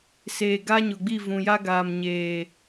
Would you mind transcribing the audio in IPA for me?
seː˨ɡa˦ ɲʊ˨ɡ͡bi˦˨vũ˨ja˦ ɡaː˨mɲeː˨

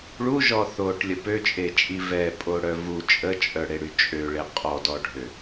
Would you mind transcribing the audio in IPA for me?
ɭuʒɔ θoʈlʲə pøt͡ʃʼet͡ʃʼi vɛpʼoɽœ vu t͡ʃʼət͡ʃʼœɽeɽy t͡ʃʼøɭe qʼɔdɔɖʱø

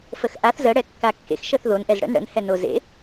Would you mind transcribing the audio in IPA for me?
fəxʔaθ zə ɽɛkːakːḛx ʃəθðon ʔɛzɽə̰n ɽə̰n hɛnozḛ

